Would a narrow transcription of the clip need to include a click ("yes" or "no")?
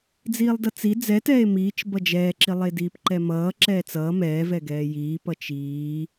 yes